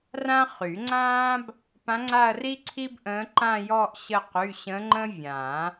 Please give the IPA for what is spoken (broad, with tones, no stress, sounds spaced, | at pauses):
r ã˥ χ y˨˩˦ ŋ͡ǀ ãː˥ b | p ã˧˥ ŋ͡ǀ a˥˧ ɐ̯ r i˥ ǀʰ i˥ b ʔ ə̃ː˧˥ ǃ ã˥˧ j ɔ˥˧ ʔ ɕ ə˥˧ q y˧˥˧ ɕ ə̃˧˥ ŋ͡ǃ ə̃˥ vʲ ã˨˩˦